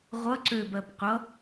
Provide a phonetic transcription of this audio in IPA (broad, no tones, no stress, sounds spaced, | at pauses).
ʁʷ ʌ ǀ ø b ɜ b qʷ ʌ